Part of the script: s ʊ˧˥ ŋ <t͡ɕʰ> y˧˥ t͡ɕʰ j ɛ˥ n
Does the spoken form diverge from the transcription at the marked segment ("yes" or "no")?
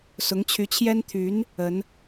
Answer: no